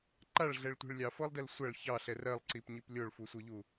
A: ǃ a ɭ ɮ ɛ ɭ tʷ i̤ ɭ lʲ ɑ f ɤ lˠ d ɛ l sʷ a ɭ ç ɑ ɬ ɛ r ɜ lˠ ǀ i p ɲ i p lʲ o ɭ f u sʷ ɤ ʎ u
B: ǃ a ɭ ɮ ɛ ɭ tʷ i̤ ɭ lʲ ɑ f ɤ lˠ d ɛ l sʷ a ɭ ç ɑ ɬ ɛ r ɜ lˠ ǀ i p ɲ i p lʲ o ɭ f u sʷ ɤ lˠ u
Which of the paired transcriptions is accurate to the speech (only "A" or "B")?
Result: A